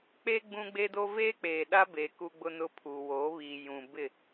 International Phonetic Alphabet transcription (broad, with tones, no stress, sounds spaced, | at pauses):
k͡p e˦ ɡ͡b ũ˦ ɡ͡b e˦ d o˦ v eː˦ k͡p eː˨ ɗ a˦ b e˨ k u˦ ɡ͡b ʊ˦ n ʊ˦ pʰ u˨ w oː˨˦ β i˨ j ũ˨ b ɪ˦˨